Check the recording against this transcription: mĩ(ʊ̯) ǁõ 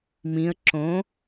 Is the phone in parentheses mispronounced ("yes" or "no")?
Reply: yes